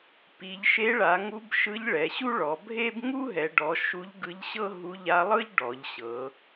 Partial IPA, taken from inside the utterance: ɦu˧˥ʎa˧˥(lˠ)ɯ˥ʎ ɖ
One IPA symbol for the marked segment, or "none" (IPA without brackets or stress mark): lˠ